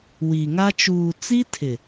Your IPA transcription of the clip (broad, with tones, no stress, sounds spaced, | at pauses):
w i˨ ŋ a˦ t͡ʃ uː˨ t͡s i˦ tʰ ɪ˨